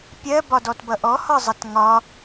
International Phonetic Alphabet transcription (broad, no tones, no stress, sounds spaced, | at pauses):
pʲ ɜ b ɒ d ɔ t b ʌ ʔ ɔ h ɒ zˤ ʌ t ŋ ɒ